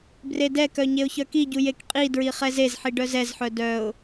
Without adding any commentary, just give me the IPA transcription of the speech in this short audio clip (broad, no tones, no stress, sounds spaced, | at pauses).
b r e d ɛ k œ ɲ e ʊ̯ ç œ k i ɟ u j e k qʼ i d ɹ i χ ɛ z e z ħ i ɖ œ z ɛ z ħ œ d œ ʊ̯